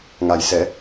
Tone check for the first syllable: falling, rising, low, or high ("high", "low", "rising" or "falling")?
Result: low